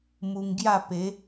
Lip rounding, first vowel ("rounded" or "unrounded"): rounded